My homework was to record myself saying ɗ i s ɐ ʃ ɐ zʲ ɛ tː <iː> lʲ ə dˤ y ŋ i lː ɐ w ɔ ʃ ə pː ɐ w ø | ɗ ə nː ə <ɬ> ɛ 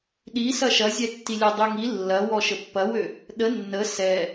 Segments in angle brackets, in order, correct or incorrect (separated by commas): incorrect, incorrect